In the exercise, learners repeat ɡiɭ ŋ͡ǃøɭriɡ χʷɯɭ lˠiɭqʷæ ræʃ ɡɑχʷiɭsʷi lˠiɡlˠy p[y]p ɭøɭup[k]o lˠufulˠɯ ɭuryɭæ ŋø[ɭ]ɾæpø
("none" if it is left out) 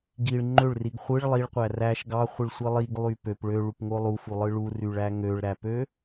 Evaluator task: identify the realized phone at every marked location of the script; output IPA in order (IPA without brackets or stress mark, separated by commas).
ø, ŋ, ɭ